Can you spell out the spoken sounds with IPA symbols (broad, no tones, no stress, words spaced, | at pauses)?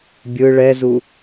bʲɯ ɭɛzu